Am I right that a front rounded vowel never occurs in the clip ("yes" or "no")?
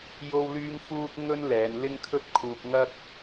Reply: no